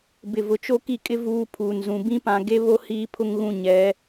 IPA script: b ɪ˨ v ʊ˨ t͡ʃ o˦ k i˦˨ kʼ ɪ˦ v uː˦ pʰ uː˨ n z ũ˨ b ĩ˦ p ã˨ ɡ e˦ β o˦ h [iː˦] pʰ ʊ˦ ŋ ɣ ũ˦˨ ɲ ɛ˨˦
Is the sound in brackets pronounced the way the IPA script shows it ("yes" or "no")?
yes